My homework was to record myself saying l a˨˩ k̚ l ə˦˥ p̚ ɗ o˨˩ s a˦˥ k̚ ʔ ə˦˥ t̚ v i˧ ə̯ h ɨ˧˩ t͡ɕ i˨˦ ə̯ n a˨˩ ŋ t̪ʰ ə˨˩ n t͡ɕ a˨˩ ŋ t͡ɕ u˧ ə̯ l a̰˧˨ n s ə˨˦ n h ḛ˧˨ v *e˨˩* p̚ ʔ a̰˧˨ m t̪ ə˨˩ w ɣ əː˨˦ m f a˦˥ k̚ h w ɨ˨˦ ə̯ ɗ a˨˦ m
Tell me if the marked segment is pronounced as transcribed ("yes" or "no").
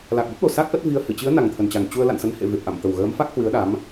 yes